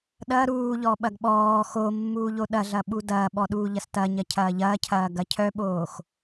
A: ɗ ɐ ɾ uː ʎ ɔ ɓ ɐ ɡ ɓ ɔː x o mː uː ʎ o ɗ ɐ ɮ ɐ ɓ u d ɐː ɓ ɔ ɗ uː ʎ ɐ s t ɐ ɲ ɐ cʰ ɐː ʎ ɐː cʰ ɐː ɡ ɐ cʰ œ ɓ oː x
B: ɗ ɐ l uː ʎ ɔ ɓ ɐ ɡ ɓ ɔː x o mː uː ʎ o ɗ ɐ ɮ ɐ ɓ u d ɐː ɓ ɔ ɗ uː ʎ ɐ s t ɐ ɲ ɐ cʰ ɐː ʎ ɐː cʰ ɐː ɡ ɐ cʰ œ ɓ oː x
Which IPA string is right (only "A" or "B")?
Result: A